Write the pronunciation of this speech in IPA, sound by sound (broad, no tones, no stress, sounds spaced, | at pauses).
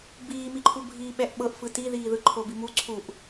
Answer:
b iː m i ǃʰ u bʱ iː ɓ ɛ ʔ ɓ ɤ ʔ f ɯ t i ð iː ð ɯ ǃʰ o b i m u ǀʰ u ʔ